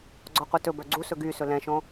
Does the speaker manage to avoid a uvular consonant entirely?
no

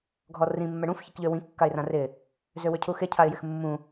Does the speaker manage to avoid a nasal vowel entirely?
no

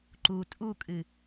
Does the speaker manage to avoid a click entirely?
no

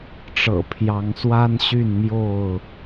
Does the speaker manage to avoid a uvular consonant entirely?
yes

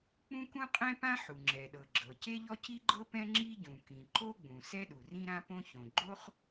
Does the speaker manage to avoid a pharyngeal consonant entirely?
no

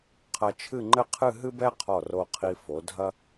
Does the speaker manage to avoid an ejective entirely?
yes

